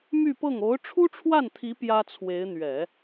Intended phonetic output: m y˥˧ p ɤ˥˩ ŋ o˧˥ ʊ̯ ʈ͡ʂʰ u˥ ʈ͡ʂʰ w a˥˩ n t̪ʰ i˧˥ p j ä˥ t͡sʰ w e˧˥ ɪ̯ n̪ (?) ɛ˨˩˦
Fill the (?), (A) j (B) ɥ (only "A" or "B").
B